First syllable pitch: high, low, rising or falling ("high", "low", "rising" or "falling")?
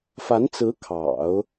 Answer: rising